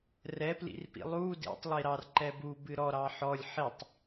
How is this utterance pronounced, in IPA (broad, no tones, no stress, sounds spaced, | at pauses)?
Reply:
r ɛ p l ḭ r p ḭ lˠ u d ḭ tˤ lˠ i ɾ ɑ r ǃ ɛ b u b ɨ ɾ ɔ ɾ ɑ ħ ɔ lʲ ħ i tˤ